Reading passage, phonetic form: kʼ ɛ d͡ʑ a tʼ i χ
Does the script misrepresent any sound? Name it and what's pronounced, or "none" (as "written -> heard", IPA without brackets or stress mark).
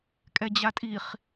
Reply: none